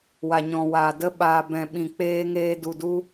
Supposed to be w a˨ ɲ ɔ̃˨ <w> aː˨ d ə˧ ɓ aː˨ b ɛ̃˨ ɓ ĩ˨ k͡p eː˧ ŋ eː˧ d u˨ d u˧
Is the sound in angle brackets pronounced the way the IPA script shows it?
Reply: yes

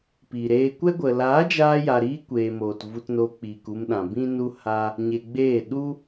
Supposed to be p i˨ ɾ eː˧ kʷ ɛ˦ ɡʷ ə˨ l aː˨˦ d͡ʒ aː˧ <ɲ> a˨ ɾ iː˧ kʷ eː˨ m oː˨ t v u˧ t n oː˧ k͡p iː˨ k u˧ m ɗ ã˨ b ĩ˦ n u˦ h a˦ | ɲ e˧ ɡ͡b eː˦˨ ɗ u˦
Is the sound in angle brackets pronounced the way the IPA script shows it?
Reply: no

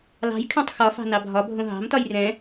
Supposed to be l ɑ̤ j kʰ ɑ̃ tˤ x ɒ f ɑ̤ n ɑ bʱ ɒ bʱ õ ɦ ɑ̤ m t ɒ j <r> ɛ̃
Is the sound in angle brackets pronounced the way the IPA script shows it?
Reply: yes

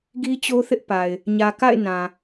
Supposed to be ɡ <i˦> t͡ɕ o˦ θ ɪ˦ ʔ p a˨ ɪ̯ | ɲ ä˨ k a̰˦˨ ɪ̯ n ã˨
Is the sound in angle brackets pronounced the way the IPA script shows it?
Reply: yes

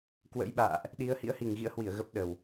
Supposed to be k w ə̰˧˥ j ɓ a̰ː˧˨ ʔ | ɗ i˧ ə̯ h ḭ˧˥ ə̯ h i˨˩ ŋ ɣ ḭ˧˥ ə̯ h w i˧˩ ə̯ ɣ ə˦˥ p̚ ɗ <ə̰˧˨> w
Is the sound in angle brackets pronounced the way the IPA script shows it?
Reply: no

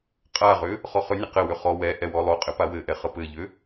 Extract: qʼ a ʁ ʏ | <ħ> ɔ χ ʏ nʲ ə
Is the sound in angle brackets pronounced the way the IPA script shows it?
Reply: no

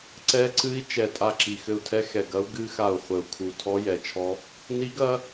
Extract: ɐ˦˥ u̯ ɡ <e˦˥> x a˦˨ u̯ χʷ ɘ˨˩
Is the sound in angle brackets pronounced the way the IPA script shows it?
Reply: no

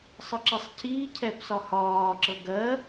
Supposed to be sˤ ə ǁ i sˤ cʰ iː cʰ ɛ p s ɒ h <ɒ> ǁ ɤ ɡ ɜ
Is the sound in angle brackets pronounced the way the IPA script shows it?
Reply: no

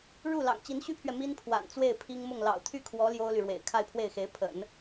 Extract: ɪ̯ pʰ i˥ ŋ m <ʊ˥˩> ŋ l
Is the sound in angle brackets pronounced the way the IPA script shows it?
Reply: yes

